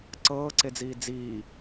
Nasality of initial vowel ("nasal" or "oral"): oral